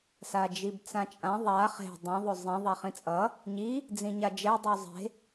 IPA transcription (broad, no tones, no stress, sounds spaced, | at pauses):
s a d͡ʒ i b t͡s ã t͡ʃʼ ã ðˤ a χ e̤ dˤ ĩ ðˤ o zˤ ĩ ðˤ a χ ĩ t͡sʼ ʌ | ɲ i | d͡z ĩ ɲ a d͡ʒ ɛ dˤ u zˤ e̤